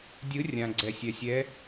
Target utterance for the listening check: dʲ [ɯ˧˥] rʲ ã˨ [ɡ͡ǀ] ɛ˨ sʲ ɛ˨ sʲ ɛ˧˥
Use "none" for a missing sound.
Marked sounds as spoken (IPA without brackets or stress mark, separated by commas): ɯ˧˥, ɡ͡ǀ